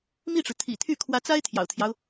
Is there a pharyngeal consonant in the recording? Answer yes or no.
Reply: no